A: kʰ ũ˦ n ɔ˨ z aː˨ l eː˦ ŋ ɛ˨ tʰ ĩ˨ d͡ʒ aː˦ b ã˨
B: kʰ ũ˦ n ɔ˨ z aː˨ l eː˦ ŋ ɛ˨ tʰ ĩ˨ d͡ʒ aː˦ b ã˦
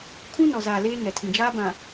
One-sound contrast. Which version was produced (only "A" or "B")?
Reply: A